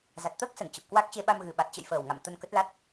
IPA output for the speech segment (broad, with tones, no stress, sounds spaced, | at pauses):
z a˨˩ t̚ t̪ əː˦˥ k̚ s ə˧˩ n t͡ɕ ə˨˩ p̚ k w a˦˥ k̚ t͡ɕ e˧ ɓ a˧ m ɣ ɨ˨˩ ɓ a˨˩ t̚ t͡ɕ ə̰˧˨ j f əː˨˩ w ŋ a̰˧˨ m t̪ ə˧ n k ə˦˥ t̚ l a˦˥ t̚